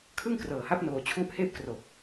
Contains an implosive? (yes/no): no